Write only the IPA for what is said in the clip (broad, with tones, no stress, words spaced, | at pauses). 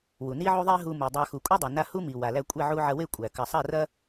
wu˨ni˦ʕu˦ ðˤe˦ɦu˧ mu˨dˤa˧ xu˨kʷʼɐ˦dˤa˨na˧ hu˦mi˨ wa˨læ˧kʷʼe˦˨ ʕu˧ʕɐ˧we˦˨ kʷʼæ˨ kɐ˨sˤɐ˦˨rɐ˦